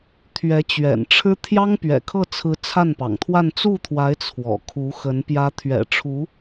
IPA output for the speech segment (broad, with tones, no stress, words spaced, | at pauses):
t̪ʰɥɛ˧˥t͡ɕɥɛ̰˨˩nʈ͡ʂʰɻ̩˥ t̪ʰjɑ˥ŋpɥɛ̰˨˩kʰɤ˥˩ t͡sʰɹ̩˧˥ t͡sʰa˥˩npɑ̰˨˩ŋt̪ʰwa˥˧n t͡su˥˩t̪ʰwa˧˥ɪ̯ t͡sʰwɔ̰˨˩kʰu˧˥xə˧˥n pjä˧˥t̪ʰɥɛ̰˨˩ʈ͡ʂʰu˧˥